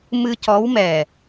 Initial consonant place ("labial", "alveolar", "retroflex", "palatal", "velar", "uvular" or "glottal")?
labial